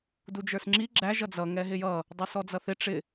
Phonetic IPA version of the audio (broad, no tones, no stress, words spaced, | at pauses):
dud͡ʒə˞sŋ͡ǁi ɡ͡ǁæ ʒʌd͡zʌ ŋɛɦɪjʌ | dˤə˞sɔd͡zʌθɪ ʈ͡ʂɪ